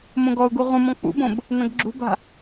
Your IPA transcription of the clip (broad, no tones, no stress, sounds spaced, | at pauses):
m õ ɡ ɔ ʊ̯ ɡ u ʁ ũ m ɔ̃ k͡p ṵ b õ b | n ɐ̃ ɡ ɡ͡ǁ ṳ b a̤